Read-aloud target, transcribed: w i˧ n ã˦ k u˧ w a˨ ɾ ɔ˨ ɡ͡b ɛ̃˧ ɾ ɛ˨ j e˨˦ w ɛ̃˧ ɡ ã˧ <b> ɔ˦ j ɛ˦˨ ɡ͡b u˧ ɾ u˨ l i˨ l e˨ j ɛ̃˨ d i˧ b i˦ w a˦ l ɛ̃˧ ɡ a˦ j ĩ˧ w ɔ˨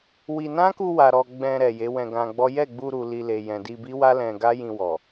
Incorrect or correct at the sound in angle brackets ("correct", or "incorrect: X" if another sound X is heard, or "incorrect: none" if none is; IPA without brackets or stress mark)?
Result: incorrect: ɡ͡b